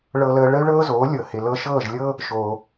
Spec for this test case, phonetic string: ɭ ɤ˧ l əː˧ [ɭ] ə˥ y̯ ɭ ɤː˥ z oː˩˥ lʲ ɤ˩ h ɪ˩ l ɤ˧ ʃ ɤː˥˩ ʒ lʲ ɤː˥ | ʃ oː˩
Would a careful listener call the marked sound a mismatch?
no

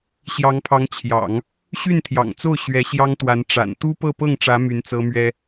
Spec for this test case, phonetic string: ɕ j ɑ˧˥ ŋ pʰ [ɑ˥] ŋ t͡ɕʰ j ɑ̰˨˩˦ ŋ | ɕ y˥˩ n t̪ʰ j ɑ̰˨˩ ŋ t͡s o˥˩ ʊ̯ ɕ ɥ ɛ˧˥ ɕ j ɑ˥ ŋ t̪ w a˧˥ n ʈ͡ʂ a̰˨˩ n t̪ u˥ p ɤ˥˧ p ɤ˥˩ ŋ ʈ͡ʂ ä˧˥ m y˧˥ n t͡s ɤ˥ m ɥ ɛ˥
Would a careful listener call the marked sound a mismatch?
yes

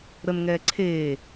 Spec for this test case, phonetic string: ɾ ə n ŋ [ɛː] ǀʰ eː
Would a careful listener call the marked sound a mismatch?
no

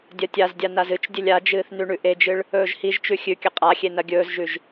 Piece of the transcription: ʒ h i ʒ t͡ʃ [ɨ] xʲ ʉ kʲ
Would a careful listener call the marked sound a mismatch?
yes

